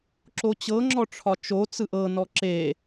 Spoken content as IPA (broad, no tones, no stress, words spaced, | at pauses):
ǁot͡ɕɤŋ͡ǁɔ ʈ͡ʂʰɒt͡ʃot͡sɯ ʔɤnɔ ǁe